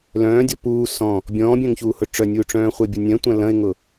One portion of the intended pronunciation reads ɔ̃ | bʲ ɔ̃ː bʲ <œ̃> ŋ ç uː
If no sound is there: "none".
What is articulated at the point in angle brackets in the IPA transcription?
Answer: œ̃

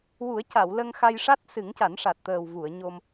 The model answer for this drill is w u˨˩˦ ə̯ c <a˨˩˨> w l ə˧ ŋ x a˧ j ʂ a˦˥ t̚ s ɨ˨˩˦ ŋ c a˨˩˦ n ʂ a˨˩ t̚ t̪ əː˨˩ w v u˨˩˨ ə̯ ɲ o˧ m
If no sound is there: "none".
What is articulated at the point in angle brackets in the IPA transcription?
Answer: a˨˩˨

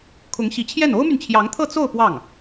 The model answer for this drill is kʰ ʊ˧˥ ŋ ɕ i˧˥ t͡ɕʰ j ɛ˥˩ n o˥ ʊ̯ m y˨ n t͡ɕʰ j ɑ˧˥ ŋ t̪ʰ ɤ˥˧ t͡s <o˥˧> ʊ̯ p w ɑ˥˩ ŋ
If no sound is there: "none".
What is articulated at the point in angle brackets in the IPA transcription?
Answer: o˥˧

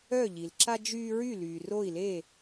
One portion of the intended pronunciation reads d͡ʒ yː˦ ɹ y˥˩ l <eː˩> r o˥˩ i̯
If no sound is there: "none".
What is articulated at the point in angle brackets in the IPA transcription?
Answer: yː˩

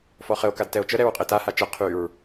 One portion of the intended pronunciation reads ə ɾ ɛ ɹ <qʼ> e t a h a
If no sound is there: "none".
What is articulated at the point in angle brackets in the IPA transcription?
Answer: qʼ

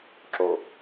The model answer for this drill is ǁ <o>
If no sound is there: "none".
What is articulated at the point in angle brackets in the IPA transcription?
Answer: o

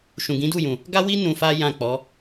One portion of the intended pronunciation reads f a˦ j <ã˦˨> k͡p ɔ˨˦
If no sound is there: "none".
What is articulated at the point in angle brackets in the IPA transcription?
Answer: ã˦˨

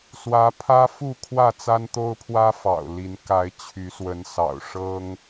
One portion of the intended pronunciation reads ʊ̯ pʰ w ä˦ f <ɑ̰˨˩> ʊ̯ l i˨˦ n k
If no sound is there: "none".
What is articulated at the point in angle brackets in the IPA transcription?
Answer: ɑ̰˨˩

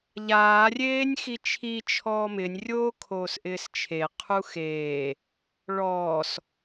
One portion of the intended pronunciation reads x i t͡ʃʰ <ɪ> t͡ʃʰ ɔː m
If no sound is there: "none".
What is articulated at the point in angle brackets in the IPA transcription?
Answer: i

